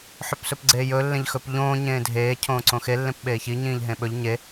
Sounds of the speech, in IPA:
ħɵpsɵpɡ͡ǀeːjɵ lːẽʎxɵp ʎõː ɲẽːdʱeː cʰõːǀõxe lːẽpɓeːçi ɲĩːʎɦẽɓɵʎ ɲe

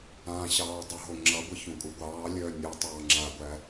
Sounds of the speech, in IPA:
ãɕɑː dˤœɦoŋ͡ǁʌɡʷə çũkʼuɡʷɑːlʲœː nʲu tˤɑːŋ͡ǁaɡʷæ

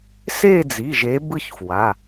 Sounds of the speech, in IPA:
se˥˧d͡zi˩˧˩ʒe˨˦ bɯ˥˧çfwa˩˧˩

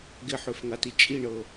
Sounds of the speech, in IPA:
ɡɪħøfŋati t͡ʃʼiɳɤ

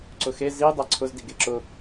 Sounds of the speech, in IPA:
ǀʊxe zi dˤaǀʰʊz diɡeǁʊ

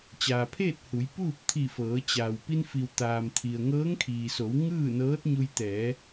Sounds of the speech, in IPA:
t͡ɕaː˩pʰeː˥˨t̚hu˩˧j puː˥˨p̚t̪ʰi˧˩fɤː˩˧t͡ɕaː˩w pi˧nfi˩w t̪aː˩mt̪ʰi˩ə̯ŋɤː˧˥ŋ kʰiː˩so˩˧w ŋɯː˥˨nɤː˧˥t̚ɲu˧j t̪ɛː˩˧

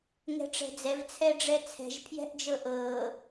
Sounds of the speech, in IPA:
ŋɛ̤ʈ͡ʂɛ̤d͡zɛv t͡sʰɛɖ͡ʐɛt͡sʰɛ̤ʒ pʰjɛ̤ʔd͡ʒɤʔɤː

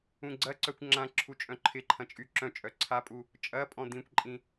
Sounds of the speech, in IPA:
ũɡ͡ǀɐǀœkʷ ŋ͡ǁãǁʰu t͡ʃʼœ̃ǃʰɪǃʰɐ̃ t͡ʃʼyǁœ̃t͡ʃʼœ ǀʰapʼu | t͡ʃʼɐpʼɔ̃ d̪ĩkʷǃʼĩ

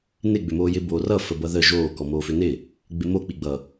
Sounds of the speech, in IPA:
nɪ ɡ͡bʏmoːjɪ boːrʌ fəbʌðəː ʒoː kɔmoːfʏnɪ | ɡ͡bɪmo k͡piɡ͡bʌ

